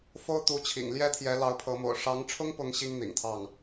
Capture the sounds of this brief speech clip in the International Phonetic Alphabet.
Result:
f o˥ ʊ̯ t̪ u˧˥ t͡ɕʰ ḭ˨˩ ŋ l j ɛ˥ t̪ʰ j ɛ˧˥ l ɑ˧˥ ʊ̯ pʰ ɤ˧˥ m o̰˨˩ ʊ̯ ʂ ɑ˧˥ ŋ ʈ͡ʂʰ ʊ˥ ŋ p ʊ˧˥ ŋ ɕ i˥ ŋ n̪ ḭ˨˩ ŋ t̪ʰ ɑ˥˩ ŋ

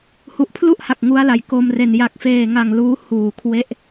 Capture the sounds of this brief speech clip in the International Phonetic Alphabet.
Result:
h u˨˩ ʔ pʰ l u˥˩ ʔ h a˨˩ k̚ ŋ u˦˥ a̯ l a˨˩ j k o˧ m r e˨˩ n j a˨˩ k̚ f eː˨˩ ŋ a˨˩ ŋ l uː˦˥ h uː˨˩ kʰ w e˦˥ ʔ

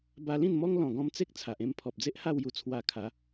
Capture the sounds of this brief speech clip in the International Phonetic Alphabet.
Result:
b a˧ l ĩ˥˧ n m ɔ˦ ŋ l ɔ̃˨˩ ɡ ɔ̃˧ m t͡s e˦ k̚ t͡sʰ a˨ ʔ ẽ˦ m pʰ ɔ˨ p̚ d͡z e˦ ʔ h a˥˧ w j u˧ t͡sʰ w a˧ kʰ a˨˦

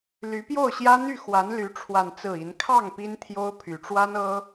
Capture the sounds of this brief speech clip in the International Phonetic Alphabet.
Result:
l y˧˥ p j o˥˩ ʊ̯ ɕ j ä˥ n̪ y˥˩ x w a˧˥ n l y˧˥ ʈ͡ʂʰ w a˥˧ n t͡s ɹ̩˥˩ i˧˥ n kʰ ɑ˥˩ ŋ p i˥ n t̪ʰ j o˥ ʊ̯ pʰ y˨˩ ʈ͡ʂ w a˥ n ɤ˥

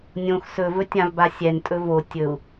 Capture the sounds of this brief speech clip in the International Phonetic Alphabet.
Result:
nʲ õ x s ɵ v ɵ tʲ ã v b a sʲ ɛ n tʼ ɵ v o tʲ ɵ u̯

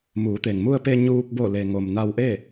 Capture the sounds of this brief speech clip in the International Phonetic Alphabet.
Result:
m uː˩˧ t̪ e˩ ŋ m u˧ ə̯ p e˧ ɲ uː˧ k̚ b o˧˩ l e˩ ŋ o˩ m n a˧ w ʔ e˥˨

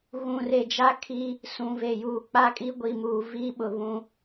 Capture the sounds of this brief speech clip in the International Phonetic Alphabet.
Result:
ɣ ũ˨ r e˨ d͡ʒ a˦ kʰ i˦ | s ũ˨ v e˨ j uː˨ k͡p a˦ kʼ i˦ ɡʷ i˨ m uː˨ v i˦ ɓ ʊ˨ β ũ˦

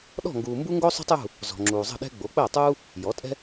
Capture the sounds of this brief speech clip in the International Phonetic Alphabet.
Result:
ɗ ɔ̤˥˨ ŋ ɡ uː˨ m b u˥ ŋ ɡ o˥ sˤ ṳ˥ tˤ j ṳ˥˨ | z ɔ̤˨ ŋ͡ǁ uː˨ zˤ ə̤˥˨ ɗ ɛ̤˥ ɡ͡b o˩˥ k͡p əː˥˨ tˤ uː˥ | j ɔ˩˥ tʼ ɛ̤˥

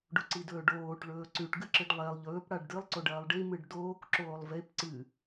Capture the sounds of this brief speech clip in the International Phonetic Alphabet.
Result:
ɖ u ǀ i d ɵː ɖ oː ʈ ɭ ɵː ǀ ʉ ʈ ɡ ɨ ǁ ɨ ɖ lˠ e lˠ ʎ ɵː p ɽ a ɖ d ɨ lˠ ǀ o ɖ ɐː lˠ ɖ i m ɨ ɖ d oː k ǁ oː lˠ v e p ǀ ɨ

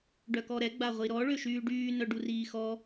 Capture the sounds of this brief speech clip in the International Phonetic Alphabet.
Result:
ɖ œ k ɔ ɾ ɛ ɡ͡b a ʁʷ i ɾ ɔ ɭ ø ʃ yː ɖ yː n œ ɖ u r iː x ɔ

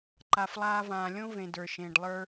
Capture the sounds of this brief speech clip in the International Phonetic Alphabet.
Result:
ǃ a˩ f lˠ aː˨ v ãː˩ lʲ õ˥ v ẽ˩ d ə˞˩ ʃ ẽː˩ ɖ lˠ ə˞˨

